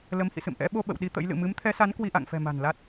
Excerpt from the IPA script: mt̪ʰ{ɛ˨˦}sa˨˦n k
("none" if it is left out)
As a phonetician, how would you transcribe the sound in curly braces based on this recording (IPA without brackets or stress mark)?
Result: ɛ˨˦